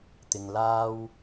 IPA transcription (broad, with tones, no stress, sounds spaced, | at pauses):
t̪ ɪ˨ ŋ l aː˥ w